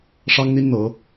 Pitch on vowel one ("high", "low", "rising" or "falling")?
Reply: high